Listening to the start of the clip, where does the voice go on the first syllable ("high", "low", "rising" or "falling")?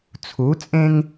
rising